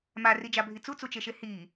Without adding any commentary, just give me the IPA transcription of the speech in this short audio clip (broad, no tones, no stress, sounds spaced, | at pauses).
m a r i d͡ʒ a bʱ i t͡s u t͡s u t͡ʃ e ʃ e h i